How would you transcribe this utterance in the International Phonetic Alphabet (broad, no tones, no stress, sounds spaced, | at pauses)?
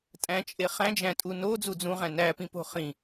tʼ æ̃ t͡ʃʼ e χ æ̃ d͡ʒ æ̃ tʼ u n o d͡z u d͡z ũ ʁ æ̃ n æ p ĩ p o̤ χ ĩ